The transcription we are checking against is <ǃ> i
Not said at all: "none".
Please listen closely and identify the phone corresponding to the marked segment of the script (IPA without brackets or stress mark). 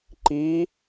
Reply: ǃ